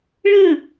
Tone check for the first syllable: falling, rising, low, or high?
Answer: falling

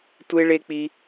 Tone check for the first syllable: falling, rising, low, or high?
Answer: high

